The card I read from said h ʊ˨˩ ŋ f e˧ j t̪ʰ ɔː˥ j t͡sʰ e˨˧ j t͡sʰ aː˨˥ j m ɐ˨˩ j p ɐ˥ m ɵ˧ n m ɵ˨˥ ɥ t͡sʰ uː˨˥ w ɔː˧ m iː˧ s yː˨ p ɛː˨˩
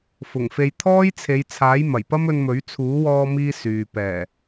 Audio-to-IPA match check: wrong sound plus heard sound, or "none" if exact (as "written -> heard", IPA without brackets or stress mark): h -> f